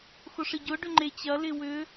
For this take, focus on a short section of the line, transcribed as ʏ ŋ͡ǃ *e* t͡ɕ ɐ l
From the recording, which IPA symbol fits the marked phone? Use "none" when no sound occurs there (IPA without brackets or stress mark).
e